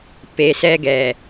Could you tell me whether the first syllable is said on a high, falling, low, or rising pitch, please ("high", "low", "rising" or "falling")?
low